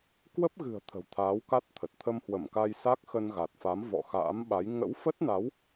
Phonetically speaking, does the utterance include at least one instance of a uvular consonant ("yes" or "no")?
no